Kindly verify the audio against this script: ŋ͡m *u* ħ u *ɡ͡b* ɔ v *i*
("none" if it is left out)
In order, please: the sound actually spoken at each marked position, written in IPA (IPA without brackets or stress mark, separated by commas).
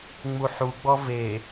u, ɡ͡b, e